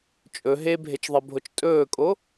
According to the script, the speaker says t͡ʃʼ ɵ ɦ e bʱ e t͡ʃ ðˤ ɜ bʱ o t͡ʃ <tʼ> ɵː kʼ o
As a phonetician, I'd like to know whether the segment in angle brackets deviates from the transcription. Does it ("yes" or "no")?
no